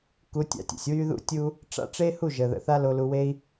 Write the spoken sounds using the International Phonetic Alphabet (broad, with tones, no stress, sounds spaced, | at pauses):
k u˨˦ tʲ a̰˧ tʲ ə̰˨ sʲ w y˦ ð ṵ˦ tʲ u˦ | ʈ͡ʂ a̰˦ ʈ͡ʂ e˦ h u˦˨ ʒ ə˨ ð ə̰˨ θ a˦ l o˧ l u˧ w e˦ i̯